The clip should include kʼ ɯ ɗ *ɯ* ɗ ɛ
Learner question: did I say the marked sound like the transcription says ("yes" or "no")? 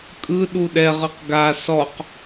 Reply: no